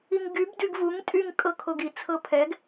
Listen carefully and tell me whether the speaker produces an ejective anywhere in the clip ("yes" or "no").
yes